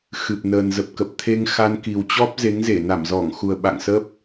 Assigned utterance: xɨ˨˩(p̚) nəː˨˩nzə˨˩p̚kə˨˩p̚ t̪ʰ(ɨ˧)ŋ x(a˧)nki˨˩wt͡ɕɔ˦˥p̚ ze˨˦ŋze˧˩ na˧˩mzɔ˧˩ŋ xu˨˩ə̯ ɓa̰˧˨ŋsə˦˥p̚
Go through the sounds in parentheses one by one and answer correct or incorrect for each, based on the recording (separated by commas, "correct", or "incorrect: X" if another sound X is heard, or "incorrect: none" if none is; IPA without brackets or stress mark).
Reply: correct, incorrect: e˧, correct